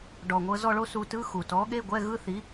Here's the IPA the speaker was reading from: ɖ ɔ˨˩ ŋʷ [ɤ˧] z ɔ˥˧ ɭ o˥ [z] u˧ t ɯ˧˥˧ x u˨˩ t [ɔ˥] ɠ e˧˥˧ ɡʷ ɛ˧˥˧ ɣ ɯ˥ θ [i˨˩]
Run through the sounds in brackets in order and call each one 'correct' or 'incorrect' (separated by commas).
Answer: correct, incorrect, incorrect, incorrect